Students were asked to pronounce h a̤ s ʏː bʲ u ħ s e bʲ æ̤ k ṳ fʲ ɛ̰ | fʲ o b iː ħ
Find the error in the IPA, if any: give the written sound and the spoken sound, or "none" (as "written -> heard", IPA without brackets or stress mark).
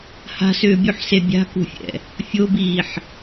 æ̤ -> a̤